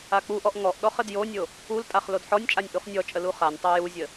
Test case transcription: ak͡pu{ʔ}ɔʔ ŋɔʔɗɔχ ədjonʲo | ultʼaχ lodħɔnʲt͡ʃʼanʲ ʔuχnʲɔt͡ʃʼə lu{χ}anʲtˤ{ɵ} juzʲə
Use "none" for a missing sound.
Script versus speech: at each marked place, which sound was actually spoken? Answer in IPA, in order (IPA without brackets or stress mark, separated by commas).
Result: ʔ, χ, œ